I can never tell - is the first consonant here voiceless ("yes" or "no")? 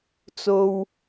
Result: yes